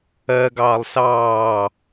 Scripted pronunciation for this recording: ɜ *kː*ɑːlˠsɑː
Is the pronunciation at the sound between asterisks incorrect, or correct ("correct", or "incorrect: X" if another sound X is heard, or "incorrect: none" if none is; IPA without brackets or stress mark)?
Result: incorrect: ɡ